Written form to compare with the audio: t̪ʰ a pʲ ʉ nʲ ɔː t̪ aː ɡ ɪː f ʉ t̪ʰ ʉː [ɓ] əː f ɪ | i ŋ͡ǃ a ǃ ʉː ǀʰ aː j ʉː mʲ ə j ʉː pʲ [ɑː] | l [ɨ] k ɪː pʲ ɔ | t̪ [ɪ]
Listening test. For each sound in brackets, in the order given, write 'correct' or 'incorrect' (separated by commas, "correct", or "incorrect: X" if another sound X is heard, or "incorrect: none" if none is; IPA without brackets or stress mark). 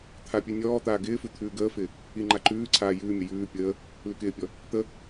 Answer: incorrect: ɡ, incorrect: əː, incorrect: ʉ, incorrect: ə